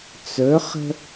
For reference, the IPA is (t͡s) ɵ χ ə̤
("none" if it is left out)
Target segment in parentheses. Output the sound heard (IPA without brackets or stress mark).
t͡s